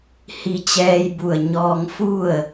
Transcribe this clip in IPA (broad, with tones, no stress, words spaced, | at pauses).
hi˧t͡ɕɛː˧jbu˧˩ə̯ ɲɔː˧ŋfu˥˨ə̯